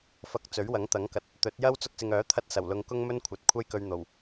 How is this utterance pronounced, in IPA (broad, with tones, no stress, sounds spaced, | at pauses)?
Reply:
f ɐ˨ k̚ t͡s ɵ˨˥ ɥ w ɐ˨˥ ŋ t̪ ɐ˨˥ ŋ k ɐ˨ t̚ | t̪ ɵ˨˥ t̚ j ɐ˥ w t͡s ʊ˧ k̚ s ɪ˨ ŋ œː˨˥ t̪ʰ ɐ˧ t̚ s ɐ˨˩ w l ʊ˧ ŋ k ʊ˥ ŋ m ɵ˥ n kʷʰ ɐ˨˥ t̚ kʷʰ ɐ˥ j k ɵ˧ ɥ n̪ o˨˩ w